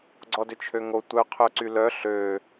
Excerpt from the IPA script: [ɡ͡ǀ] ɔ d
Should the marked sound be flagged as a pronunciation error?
no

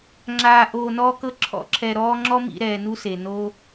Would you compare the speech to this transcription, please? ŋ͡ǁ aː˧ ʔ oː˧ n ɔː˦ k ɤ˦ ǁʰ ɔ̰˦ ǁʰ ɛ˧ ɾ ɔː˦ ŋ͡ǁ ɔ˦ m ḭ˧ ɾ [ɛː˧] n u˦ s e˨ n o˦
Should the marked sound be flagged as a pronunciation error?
no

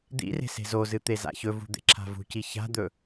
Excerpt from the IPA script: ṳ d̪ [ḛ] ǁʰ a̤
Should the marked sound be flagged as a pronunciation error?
no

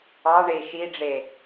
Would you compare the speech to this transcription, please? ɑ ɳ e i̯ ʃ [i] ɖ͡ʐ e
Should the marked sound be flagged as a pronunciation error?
no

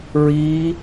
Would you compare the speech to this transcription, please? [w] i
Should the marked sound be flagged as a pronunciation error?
yes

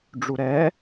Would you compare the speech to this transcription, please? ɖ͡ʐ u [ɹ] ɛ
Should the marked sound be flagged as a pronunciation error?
yes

